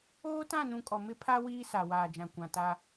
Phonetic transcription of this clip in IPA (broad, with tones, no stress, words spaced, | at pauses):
oː˦tã˦˨nũ˨ kʼɔ˨mɪ˦˨ pʰa˦ wiː˦sa˨ waː˨d͡ʒã˨ kʷã˨ta˦